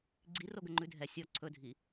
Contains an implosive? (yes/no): no